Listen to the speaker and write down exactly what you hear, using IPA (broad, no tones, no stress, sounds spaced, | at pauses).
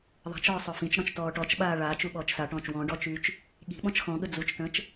ðˤ a̤ t͡ʃ ɔː sˤ œ f ĩ t͡ʃ ɽ ɔ̃ t͡ʃ t ɔː ʈ ɔ t͡ʃ ɓ aː ɭ aː t͡ʃ u ɓ ɔː t͡ʃ s a ʈ ɔ̃ː t͡ʃ w ɔ̃ ɖ ɔ t͡ʃ yː t͡ʃ | ɠ i̤ ɓ ɔ̃ t͡ʃ x ɔ̃ ɠ ə d͡z u t͡ʃ t ə̃ː t͡ʃ